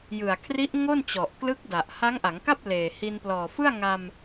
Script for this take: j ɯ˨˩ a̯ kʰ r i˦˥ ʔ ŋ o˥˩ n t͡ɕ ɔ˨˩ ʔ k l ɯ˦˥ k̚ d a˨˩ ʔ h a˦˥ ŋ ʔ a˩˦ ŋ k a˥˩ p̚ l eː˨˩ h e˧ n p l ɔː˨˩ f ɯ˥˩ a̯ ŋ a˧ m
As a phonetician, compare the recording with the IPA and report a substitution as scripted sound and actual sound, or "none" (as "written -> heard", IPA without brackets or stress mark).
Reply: e˧ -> i˧